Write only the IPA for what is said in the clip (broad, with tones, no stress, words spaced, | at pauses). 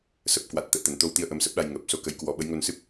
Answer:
sə˨˩p̚kwa˨˩t̚ t̪ə̰ː˧˨t̪ə˨˩nt̪o˧wt̪i˧ə̯ ʔə˨˦msə˦˥p̚ɗa˧j ŋəː˨˩p̚so˧ kə˧jkwɔ˧ ɓə˨˦jŋo˧nsɨ˦˥p̚